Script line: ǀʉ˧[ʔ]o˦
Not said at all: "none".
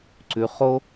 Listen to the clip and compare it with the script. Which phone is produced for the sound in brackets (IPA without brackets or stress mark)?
χ